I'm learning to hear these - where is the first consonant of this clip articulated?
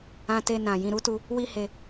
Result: tongue tip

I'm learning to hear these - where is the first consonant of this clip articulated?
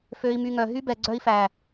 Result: lips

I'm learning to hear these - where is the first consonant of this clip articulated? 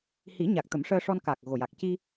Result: throat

